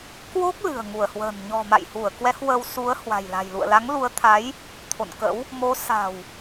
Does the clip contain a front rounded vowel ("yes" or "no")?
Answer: no